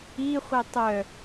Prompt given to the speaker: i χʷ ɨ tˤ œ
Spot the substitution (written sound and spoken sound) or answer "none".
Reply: ɨ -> i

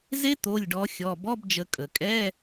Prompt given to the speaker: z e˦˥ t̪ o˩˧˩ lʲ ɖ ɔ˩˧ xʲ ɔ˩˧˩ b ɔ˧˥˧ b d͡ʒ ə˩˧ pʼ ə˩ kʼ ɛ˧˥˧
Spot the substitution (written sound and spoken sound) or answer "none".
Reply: pʼ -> kʼ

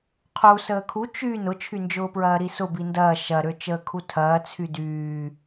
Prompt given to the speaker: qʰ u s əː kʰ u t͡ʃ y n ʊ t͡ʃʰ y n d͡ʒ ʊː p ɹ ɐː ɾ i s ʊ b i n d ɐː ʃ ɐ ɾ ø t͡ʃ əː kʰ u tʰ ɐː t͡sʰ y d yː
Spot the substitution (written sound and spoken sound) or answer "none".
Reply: none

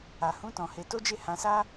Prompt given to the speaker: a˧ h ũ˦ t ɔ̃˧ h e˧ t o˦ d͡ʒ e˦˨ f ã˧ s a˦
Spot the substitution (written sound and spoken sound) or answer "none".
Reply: f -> h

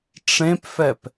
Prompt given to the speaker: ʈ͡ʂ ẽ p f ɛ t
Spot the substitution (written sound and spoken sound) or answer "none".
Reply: t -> p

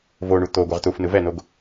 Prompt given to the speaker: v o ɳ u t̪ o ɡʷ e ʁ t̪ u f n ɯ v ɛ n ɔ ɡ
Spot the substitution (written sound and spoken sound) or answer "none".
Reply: ɔ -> o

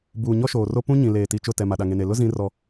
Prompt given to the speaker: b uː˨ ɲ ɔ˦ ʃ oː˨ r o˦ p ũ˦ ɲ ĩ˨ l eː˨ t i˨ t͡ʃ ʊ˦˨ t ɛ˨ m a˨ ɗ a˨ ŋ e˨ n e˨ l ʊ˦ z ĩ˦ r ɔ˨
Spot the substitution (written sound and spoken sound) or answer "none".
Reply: none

